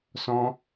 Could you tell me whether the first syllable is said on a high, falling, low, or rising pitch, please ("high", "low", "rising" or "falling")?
high